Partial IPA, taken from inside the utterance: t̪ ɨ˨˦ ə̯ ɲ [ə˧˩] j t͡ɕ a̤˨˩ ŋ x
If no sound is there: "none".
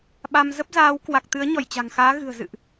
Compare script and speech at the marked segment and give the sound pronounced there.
ɔ˧˩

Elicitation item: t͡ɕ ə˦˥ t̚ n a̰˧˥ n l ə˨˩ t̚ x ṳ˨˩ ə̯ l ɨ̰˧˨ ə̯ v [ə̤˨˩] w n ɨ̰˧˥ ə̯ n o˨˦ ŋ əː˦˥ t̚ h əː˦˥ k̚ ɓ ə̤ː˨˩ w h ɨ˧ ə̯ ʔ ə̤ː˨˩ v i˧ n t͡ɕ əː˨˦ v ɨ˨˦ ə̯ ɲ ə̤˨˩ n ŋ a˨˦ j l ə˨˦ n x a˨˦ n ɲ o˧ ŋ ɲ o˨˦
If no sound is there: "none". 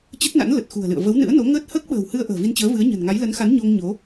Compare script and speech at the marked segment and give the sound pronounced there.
ə˨˦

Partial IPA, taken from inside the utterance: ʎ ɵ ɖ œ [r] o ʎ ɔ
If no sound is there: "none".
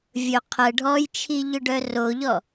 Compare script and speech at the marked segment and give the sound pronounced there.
r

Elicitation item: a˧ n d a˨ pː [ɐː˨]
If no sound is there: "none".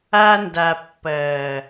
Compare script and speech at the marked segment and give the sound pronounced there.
ɐː˨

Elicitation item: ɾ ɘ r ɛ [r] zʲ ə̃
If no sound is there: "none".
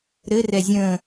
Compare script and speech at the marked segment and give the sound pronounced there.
none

